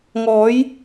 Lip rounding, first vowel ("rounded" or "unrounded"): rounded